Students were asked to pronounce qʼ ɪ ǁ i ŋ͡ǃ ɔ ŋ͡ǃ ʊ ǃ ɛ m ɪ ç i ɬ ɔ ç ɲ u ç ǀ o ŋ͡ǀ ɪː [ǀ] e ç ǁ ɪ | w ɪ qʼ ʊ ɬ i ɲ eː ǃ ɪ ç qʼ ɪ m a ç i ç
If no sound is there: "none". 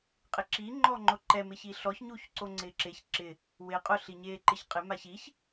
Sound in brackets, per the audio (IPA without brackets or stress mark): ǁ